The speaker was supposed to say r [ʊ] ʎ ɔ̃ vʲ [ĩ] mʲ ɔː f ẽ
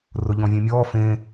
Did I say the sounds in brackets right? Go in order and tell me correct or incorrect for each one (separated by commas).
correct, incorrect